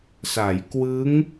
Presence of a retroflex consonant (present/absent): absent